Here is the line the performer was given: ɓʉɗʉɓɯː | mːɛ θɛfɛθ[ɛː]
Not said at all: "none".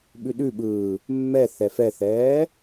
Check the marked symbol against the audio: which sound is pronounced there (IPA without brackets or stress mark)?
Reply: ɛː